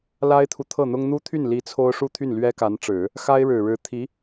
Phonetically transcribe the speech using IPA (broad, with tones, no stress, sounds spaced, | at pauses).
l a˥ ɪ̯ t̪ʰ u˨ t̪ʰ ɤ˥˩ n̪ ʊ˥ ŋ n̪ u˥ t̪ʰ y˥˩ n l i˧˥ t͡sʰ o˥ ʊ̯ ʂ u˥˧ t̪ʰ y˥˩ n l ɥ ɛ˥ k a˧˥ n ʈ͡ʂ ɻ̩˨˩˦ | x a˥ ɪ̯ ɻ ɻ̩˨˩ ɻ ɻ̩˧˥ t̪ʰ i˧˥